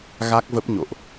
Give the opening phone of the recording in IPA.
ɣ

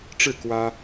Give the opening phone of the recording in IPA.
ʈ͡ʂ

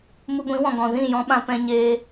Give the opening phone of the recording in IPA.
m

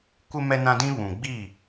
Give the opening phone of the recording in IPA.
kʷ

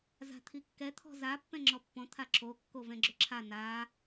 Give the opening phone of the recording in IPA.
z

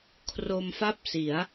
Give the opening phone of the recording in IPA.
kʰ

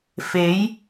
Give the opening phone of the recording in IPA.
f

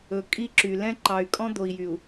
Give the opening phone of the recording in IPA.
ɵ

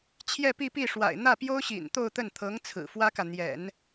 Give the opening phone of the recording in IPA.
t͡ɕʰ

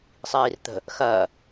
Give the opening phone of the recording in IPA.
sˤ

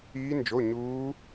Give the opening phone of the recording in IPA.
iː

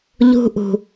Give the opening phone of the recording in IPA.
ʎ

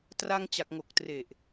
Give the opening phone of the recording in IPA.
t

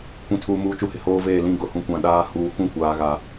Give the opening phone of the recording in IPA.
kʷ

